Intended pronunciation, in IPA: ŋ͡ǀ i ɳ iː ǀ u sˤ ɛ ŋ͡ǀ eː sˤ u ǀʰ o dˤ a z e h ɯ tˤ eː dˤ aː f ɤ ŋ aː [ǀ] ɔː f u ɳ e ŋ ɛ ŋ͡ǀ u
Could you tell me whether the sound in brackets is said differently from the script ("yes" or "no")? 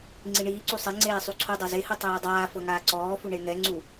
no